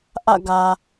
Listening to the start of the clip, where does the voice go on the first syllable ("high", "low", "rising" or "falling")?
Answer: falling